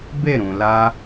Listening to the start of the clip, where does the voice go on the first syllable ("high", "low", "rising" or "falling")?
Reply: falling